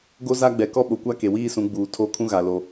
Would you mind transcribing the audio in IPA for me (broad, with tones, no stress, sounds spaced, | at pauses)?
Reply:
ɡ o˦ z a˦ ɡ͡b ɛ˨ k ɔ˦ ɓ o˨ kʷ a˦ k e˨ w iː˦ s ũ˨˦ ɡ͡b uː˨ tʰ o˦˨ kʰ ũ˦ ɣ a˨ l o˨˦